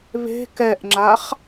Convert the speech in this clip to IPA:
β e̤ k ɛ ʔ ŋ͡ǁ a χ

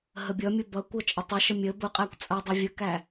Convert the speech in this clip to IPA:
ɦ ə bʲ ʌ mʲ ʊ b ʌ kʷ ʌ t͡ʃʼ ɪ tˤ ə ʃ ə mʲ ə b ʊ qʼ æ kʷ t͡sʼ ʌ dˤ i vʲ ə k æ

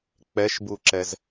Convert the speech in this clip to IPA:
k͡p ɛ ʃ b u ǁ ɛ z

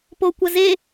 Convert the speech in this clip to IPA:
p o kʷ ɐ z e

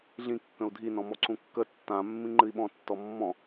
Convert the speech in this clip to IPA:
ɮ ĩ kː ə̃ u̯ dʱ i n ɔ̃ m ɔ ǀ ũ kː ə tː ã mː ĩ ŋ͡ǃ ɨ i̯ ɓ ɔ̃ tː ɔ mː ɔ̃

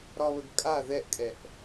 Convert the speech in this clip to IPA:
ɾ ɒ β ə ɡ kʼ a ð ɛ ʔ kʼ ɛ ʔ

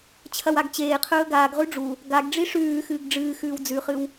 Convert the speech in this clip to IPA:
t͡ɕʰ ɐ w a ɡ t͡ɕ eː qʰ ɵː ɡ aː ɡ ʁ ʉ ɖ͡ʐ u | ɡ a ɡ ɖ͡ʐ i ʂ ʉː x ɨː ɡ ɖ͡ʐ ɨː x ʉː w d͡z ʉ χ ɨ w

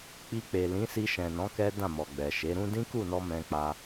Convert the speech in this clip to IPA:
k͡p i˧ k͡p e˨ l ĩ˨˦ s i˧ ʃ ɛ̃˨ n ɔ̃˨˦ k ɛ˦ d ã˦˨ m ɔ˨ ɡ͡b ɛ˨ ʃ e˨˦ ɾ ũ˦ d ĩ˦ k u˦˨ n ɔ˧ m ɛ̃˧ k͡p a˦

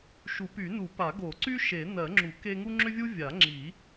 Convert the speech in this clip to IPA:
ʃ u˨˩˦ p y˨˩˦ n u˨˩˦ p a˨˩˦ ɡ o˨˩˦ ǀ y˥ ʃ e˨˩˦ n ɜ˨˩˦ ŋ͡ǁ u˨˩˦ k e˥ ŋ u˥ ŋ͡ǁ ʏ˥ vʲ u˥ vʲ a˨˩˦ ŋ͡ǁ i˨˩˦

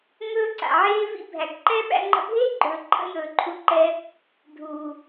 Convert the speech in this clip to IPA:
ŋ ɵː˦ ǀ a̰˨ ʕ eː˦ v ḭ˦ bʱ æ˨ ɡ ǃ ɛ˦ ɓ æ̰˧ ŋ͡ǃ ə̰˧ bʱ eː˦ ɡ͡ǃ ɵː˨ ǃʰ ə̰˦ j ɵː˨ ǃʰ u˧ ǃ ɛ˧ | dʱ uː˨

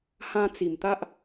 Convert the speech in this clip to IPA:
h ã˧ t͡s i˨˩ m t̪ a˦ ʔ

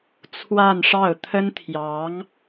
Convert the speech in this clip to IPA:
t͡sʰ w a˥˧ n ʂ ɑ˥˩ ʊ̯ t̪ʰ ə˥ n t̪ʰ j ɑ˧˥ ŋ

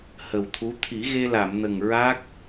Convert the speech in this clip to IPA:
h ə˨˩ w t̪ʰ u˧˥ t̪ʰ i˨˩˦ ɣ e˧ l a˨˩˨ m n ə˨˩ ŋ ɹ a˦˥ k̚

